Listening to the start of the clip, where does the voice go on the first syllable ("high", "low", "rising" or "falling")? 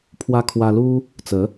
high